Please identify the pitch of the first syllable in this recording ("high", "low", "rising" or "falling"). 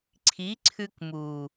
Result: rising